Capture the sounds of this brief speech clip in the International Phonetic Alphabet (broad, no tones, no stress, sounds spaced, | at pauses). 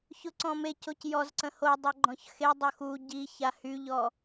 ç ʊ ǀ ɔ̃ m e c o c j ɔ z ǀ ə̃ h o dˤ œ ɡ͡ǃ ɔ̃ ç x e dˤ ʊ x u ɟ i ç a h y ʎ ɔ